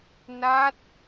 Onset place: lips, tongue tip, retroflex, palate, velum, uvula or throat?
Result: tongue tip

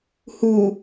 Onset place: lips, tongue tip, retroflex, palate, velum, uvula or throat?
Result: throat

